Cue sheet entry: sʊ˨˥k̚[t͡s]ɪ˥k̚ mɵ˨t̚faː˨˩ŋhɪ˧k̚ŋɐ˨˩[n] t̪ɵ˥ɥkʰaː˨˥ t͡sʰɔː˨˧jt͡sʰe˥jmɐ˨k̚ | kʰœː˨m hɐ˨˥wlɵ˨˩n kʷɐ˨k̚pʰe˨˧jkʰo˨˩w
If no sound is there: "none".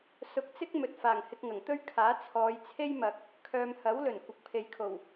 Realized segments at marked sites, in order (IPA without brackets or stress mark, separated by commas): t͡s, ŋ